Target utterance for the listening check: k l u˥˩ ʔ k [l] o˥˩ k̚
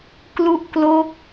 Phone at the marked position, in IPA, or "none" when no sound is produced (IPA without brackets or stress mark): l